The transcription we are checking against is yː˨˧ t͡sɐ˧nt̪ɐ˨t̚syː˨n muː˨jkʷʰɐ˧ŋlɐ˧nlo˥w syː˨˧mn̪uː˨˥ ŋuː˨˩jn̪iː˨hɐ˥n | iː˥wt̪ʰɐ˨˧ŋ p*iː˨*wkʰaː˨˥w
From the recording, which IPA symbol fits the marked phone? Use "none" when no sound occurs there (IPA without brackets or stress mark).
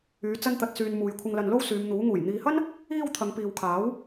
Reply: iː˨